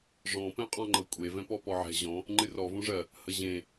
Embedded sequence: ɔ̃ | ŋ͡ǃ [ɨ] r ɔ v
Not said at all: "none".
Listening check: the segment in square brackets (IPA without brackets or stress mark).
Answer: ɨ